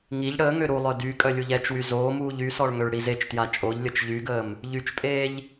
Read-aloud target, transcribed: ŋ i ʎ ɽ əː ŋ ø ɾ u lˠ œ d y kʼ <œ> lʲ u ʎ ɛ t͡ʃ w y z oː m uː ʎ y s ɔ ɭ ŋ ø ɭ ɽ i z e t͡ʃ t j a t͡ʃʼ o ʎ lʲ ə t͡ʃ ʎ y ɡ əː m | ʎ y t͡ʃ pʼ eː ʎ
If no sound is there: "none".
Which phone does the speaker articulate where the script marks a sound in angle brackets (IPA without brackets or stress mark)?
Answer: œ